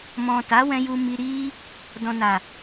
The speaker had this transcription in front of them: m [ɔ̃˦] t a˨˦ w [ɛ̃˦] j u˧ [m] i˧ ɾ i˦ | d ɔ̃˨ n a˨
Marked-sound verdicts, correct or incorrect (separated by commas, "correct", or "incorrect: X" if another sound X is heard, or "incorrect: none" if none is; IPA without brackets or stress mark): incorrect: ɔ̃˨, incorrect: ɛ̃˧, correct